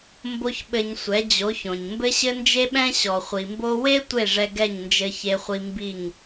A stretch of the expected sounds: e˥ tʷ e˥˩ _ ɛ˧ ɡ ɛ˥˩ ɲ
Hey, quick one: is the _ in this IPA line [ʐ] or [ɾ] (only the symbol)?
ʐ